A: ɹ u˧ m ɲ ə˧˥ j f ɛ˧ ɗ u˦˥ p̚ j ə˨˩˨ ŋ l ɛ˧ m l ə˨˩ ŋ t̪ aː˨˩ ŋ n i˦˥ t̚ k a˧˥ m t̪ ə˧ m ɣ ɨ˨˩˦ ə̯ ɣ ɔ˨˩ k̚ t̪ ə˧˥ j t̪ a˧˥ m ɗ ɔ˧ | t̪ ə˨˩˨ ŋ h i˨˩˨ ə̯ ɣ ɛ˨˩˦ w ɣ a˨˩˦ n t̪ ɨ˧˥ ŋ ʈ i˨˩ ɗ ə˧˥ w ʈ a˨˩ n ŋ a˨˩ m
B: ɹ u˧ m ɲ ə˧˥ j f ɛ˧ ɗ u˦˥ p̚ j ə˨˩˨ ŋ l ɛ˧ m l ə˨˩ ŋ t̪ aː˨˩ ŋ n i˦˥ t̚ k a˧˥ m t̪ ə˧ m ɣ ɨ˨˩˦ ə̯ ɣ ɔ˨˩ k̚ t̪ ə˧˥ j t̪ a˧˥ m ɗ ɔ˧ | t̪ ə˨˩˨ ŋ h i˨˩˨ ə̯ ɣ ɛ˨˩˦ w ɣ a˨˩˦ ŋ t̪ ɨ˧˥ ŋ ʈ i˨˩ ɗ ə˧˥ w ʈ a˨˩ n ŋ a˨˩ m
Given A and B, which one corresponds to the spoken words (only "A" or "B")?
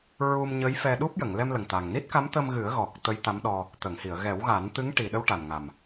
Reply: A